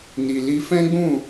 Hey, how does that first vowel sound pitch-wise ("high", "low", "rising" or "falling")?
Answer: low